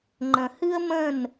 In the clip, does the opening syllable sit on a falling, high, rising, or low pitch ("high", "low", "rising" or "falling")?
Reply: low